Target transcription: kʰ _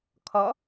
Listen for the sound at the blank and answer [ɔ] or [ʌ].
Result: ʌ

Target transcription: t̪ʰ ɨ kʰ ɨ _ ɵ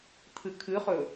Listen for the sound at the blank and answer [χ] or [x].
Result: χ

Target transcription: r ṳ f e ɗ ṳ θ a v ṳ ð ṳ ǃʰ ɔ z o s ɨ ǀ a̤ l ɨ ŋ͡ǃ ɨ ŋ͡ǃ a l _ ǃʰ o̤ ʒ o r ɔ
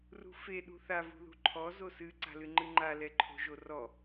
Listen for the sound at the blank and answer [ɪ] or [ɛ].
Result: ɛ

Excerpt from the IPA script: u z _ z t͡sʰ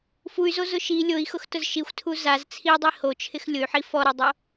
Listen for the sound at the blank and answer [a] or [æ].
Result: a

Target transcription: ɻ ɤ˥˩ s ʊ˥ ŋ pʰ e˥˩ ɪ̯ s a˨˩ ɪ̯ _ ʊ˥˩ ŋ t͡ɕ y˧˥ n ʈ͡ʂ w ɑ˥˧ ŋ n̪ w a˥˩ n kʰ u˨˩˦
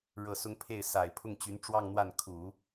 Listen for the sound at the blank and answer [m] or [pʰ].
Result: pʰ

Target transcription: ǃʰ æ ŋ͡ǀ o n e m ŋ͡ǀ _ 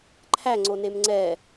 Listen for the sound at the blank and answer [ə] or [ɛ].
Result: ɛ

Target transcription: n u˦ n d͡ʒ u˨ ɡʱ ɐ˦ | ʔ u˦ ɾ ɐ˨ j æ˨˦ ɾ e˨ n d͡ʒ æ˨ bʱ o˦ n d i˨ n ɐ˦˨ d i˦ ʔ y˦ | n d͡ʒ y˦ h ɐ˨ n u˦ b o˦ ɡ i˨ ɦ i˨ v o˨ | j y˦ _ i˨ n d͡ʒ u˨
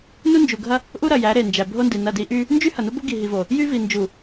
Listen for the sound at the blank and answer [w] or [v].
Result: v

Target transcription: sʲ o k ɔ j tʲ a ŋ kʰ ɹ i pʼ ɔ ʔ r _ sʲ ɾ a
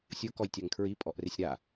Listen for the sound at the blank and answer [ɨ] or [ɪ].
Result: ɪ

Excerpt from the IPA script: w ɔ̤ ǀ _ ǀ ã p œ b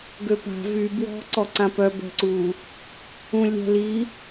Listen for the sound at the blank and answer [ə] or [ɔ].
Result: ɔ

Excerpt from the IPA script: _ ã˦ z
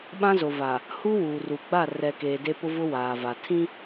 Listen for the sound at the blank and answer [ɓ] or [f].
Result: ɓ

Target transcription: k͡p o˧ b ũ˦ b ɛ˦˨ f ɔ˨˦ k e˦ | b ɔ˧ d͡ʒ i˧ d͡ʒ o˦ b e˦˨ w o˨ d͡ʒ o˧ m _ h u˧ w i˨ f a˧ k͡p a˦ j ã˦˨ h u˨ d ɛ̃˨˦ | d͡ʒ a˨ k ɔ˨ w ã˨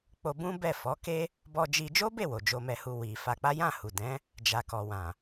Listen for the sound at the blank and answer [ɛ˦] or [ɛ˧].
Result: ɛ˧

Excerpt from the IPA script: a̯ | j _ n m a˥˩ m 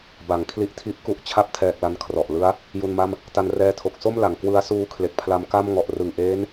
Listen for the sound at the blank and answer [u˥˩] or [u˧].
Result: u˧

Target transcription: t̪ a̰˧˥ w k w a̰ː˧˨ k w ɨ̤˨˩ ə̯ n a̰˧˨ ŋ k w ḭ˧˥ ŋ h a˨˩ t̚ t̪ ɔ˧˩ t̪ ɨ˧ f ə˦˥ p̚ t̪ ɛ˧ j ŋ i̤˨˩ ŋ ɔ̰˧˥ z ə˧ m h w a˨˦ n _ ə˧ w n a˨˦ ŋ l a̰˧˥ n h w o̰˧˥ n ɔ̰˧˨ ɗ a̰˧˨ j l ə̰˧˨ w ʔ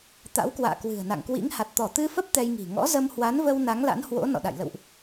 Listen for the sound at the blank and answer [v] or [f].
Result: v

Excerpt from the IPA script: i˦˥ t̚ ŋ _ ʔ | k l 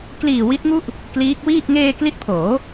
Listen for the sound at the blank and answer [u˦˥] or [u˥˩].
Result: u˥˩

